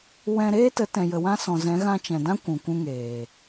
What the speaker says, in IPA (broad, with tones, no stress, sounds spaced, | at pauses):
w ɛ̃˧ ɾ eː˦ t ə˨˦ t ɛ̃˨ j ə˨ w ã˧ s ɔ̃˨ z ɛ̃˨˦ ɣ ã˧ t͡ʃ ɛ̃˨ d ã˦ kʷ ũ˨ kʷ ũ˧ ŋ eː˨